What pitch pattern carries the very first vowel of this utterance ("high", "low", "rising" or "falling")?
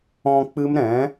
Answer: low